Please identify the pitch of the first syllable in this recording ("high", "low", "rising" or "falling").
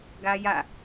high